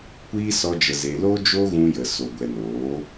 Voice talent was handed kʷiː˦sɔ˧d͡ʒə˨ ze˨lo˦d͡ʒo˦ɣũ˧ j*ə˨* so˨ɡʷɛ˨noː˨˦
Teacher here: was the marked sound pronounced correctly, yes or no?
yes